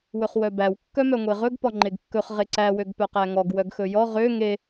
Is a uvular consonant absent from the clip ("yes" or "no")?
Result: no